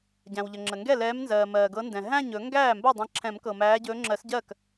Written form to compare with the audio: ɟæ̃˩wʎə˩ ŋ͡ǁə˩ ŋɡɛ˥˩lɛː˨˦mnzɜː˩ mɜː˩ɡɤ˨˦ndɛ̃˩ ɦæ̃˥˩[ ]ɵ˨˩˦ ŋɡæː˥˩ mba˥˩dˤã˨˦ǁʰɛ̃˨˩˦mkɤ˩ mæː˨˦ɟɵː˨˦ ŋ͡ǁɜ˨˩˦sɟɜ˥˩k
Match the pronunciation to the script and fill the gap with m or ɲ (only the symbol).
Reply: ɲ